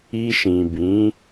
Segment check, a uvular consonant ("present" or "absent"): absent